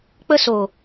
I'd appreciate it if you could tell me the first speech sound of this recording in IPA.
k͡p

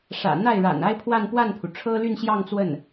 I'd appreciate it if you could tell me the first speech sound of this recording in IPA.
ʂ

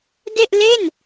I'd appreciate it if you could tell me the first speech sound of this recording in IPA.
d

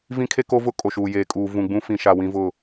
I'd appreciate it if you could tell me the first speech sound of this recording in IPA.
v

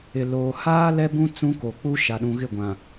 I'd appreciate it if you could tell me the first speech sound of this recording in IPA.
ɪ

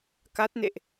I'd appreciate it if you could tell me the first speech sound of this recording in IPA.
k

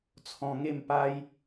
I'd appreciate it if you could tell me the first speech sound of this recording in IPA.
t͡sʰ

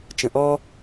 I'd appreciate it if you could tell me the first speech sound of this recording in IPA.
t͡ʃ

